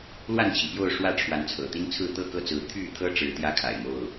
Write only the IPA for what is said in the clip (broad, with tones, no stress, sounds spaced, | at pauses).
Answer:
l w a˥˨ n t͡ɕʰ i˩ p j o˥˨ ʊ̯ ʂ w ä˥˨ ʈ͡ʂʰ w a˨˦ n t͡sʰ ɤ̰˨˩ t̪ i˦ n t͡sʰ ɹ̩˥˨ t̪ ɤ˥˨ k ɤ˥˨ t͡s ɹ̩˨˦ t̪ʰ y˥˨ t̪ʰ ɤ˦ ʈ͡ʂ ɻ̩˨˦ t̪ j ä˦ kʰ a̰˨˩ ɪ̯ m o˥˨ ʊ̯